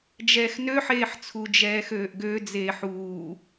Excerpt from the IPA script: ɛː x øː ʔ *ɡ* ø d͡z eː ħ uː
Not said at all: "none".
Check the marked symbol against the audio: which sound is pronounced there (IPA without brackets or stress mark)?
ɡ